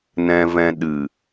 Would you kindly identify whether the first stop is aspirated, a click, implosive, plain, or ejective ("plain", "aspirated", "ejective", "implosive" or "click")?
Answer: implosive